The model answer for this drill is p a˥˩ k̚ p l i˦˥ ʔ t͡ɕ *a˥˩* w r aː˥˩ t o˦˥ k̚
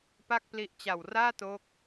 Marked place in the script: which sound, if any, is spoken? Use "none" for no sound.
a˨˩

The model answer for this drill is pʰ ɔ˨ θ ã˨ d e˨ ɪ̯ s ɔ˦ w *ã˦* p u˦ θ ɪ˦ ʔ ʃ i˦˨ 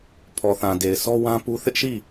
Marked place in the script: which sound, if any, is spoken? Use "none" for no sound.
ã˦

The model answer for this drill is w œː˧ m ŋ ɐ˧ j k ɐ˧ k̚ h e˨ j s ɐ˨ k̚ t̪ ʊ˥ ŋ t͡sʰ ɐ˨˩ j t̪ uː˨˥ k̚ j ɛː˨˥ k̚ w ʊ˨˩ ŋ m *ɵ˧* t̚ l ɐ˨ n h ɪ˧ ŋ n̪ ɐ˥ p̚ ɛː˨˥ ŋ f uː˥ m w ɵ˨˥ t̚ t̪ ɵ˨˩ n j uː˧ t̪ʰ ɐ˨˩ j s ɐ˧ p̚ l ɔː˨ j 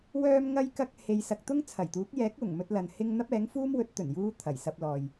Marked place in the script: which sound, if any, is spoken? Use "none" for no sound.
ɵ˧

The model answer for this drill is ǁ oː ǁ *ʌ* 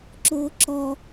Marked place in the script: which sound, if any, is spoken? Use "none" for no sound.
ɔ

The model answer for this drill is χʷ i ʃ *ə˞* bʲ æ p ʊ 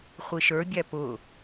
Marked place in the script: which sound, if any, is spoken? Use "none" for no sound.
ə˞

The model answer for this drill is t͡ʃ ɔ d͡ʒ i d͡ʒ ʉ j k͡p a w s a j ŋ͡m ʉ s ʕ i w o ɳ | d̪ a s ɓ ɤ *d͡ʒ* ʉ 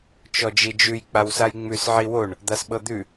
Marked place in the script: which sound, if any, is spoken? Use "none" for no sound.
d̪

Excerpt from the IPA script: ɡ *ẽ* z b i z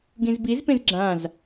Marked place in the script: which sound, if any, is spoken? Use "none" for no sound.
ĩ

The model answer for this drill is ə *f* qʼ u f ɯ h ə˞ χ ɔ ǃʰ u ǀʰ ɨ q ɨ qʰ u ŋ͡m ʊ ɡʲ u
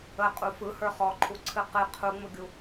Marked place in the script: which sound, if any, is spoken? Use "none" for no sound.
none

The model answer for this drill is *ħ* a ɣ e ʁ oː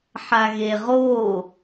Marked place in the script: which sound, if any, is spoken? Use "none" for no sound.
ħ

